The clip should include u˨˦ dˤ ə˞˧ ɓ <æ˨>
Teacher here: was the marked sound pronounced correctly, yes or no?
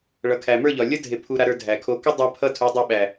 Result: yes